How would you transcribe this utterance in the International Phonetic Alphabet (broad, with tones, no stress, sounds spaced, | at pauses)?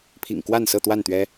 pʰ ḭ˨˩ ŋ k w a˥˨ n s ɤ˥˨ t̪ w a˥˨ n t̪ ɥ ɛ˦